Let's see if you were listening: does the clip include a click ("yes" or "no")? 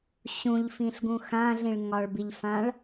no